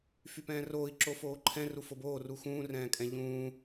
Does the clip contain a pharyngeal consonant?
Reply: no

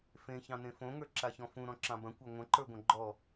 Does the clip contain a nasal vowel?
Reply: yes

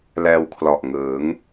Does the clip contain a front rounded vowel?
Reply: no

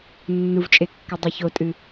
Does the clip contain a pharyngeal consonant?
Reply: no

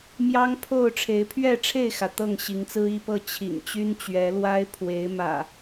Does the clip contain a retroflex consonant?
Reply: yes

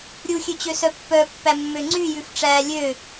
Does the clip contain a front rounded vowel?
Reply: yes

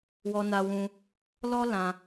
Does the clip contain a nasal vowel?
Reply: yes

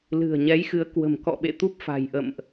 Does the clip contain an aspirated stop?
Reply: no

